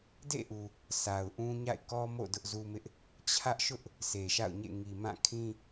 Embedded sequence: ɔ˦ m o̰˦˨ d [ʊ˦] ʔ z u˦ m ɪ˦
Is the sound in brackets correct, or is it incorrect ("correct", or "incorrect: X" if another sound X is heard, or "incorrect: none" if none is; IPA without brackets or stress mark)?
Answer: correct